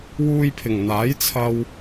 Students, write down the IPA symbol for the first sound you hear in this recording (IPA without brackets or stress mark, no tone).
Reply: w